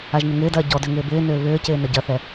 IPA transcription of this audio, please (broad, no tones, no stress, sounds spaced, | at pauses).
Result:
a ʒ n ɪ ŋ ɪː d ɐː ɟ ɔ d ø ŋ ɪː b ɪː n ʏː β ʏː c ɪː n ɐ ɟ ɐ θ ɛ